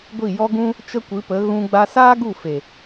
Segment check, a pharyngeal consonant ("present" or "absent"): absent